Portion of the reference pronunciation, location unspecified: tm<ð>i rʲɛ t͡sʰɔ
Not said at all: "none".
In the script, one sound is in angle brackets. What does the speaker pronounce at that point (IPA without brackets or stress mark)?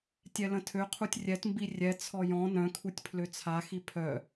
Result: b